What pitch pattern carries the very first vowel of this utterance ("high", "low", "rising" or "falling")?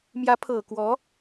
rising